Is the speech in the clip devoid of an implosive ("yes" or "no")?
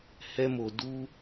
yes